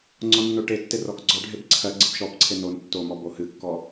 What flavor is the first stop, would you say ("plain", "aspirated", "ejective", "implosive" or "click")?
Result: click